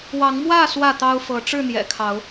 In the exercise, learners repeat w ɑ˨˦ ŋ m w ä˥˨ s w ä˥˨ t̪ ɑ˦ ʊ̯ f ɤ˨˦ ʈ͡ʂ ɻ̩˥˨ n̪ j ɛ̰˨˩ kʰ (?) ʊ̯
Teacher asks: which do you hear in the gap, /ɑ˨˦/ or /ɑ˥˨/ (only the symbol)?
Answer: ɑ˨˦